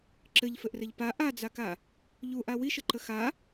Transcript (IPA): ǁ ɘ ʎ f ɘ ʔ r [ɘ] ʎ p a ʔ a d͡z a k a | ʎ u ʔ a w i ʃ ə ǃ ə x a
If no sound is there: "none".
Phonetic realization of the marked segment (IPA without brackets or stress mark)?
ɘ